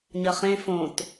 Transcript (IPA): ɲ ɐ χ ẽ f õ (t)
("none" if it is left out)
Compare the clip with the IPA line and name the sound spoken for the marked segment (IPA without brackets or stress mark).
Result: t